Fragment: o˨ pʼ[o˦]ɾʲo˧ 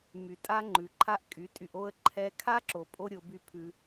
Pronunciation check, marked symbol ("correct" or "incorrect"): correct